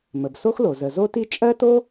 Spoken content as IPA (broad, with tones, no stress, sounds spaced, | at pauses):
m ə˩ b s o˥ x l o˩ z ə˩ z o˥ t i˥ t͡ʃʼ ɜ˥ t o˥